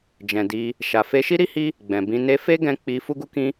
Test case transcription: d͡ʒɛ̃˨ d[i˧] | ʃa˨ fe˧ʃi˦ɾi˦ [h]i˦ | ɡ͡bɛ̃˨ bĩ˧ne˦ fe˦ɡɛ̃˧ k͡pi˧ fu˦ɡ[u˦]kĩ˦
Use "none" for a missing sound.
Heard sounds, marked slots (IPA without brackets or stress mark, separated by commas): i˧, h, u˦